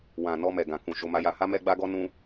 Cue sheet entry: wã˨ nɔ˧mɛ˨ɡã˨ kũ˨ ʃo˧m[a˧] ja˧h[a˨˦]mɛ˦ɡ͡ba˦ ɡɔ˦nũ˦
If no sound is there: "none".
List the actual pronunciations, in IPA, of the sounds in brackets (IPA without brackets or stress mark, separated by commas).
a˧, a˦